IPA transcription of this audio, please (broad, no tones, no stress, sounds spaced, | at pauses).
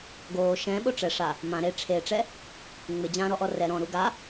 ɡ oː ʃ ɛ̃ ɓ o ʈ͡ʂ ɛ ʂ a | m ã ɾ e ʈ͡ʂʰ e ʈ͡ʂ ɛ | ŋ͡m ɪ d͡ʑ ãː ɾ ɔ ʔ ɔ r ɛ ɾ ɔ̃ ɾ u ɡ a